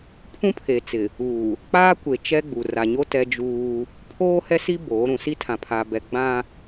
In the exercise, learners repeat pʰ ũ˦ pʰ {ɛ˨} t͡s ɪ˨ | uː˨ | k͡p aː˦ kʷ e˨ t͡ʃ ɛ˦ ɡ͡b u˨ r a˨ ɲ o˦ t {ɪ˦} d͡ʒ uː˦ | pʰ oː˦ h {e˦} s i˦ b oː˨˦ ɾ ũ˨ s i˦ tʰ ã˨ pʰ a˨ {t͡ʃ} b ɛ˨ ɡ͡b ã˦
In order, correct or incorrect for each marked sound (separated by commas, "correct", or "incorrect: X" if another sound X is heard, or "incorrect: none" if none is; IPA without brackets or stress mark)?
incorrect: e˨, incorrect: ɛ˦, incorrect: ɛ˦, incorrect: none